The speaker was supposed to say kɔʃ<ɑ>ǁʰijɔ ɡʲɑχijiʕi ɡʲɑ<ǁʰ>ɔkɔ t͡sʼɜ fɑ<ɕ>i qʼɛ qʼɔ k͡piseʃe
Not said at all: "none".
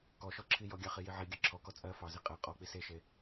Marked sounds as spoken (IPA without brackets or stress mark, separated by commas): ɔ, ǁʰ, z